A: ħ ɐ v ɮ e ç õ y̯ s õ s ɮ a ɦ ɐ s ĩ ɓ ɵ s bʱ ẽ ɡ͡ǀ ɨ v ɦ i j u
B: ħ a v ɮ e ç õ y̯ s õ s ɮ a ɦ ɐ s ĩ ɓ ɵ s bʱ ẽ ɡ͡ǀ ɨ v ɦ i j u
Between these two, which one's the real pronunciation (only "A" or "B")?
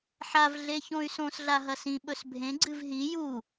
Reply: B